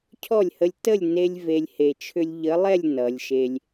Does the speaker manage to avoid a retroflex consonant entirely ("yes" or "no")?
yes